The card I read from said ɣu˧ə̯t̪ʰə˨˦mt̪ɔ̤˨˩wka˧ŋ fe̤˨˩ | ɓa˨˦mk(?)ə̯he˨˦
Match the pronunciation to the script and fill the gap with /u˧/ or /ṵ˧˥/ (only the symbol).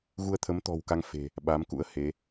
ṵ˧˥